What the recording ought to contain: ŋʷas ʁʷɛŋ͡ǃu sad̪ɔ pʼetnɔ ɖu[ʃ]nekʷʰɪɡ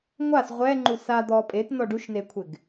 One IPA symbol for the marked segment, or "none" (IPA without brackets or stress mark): ʃ